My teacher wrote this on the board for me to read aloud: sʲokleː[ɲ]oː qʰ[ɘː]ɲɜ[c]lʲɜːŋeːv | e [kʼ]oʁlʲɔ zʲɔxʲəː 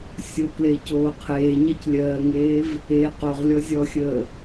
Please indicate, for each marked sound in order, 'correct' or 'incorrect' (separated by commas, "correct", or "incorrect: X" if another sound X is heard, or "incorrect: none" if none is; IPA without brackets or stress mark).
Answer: incorrect: c, incorrect: eː, correct, incorrect: q